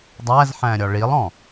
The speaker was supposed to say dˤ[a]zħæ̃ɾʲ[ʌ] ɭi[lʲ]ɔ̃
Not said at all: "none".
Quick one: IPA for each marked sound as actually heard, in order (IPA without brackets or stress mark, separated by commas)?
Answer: æ, ɒ, lˠ